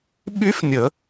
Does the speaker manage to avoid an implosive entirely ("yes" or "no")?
no